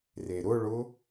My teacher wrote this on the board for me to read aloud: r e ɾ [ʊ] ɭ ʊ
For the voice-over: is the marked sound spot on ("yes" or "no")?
yes